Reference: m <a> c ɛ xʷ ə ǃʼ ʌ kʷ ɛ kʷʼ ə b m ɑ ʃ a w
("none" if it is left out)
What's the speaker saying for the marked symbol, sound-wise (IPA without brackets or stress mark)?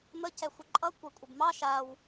ə